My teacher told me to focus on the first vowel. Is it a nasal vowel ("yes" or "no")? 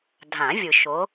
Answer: yes